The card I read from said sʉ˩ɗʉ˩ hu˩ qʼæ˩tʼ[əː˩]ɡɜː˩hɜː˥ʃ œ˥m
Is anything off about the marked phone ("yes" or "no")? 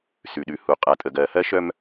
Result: yes